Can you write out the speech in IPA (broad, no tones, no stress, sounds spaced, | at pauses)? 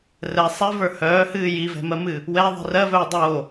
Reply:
r ɛ sˤ ɛ v ə˞ h œː h ɨː j i v ɛ̤ m ɜ m ɨː | w ɛ ðˤ i̤ r ɜ v œː dˤ oː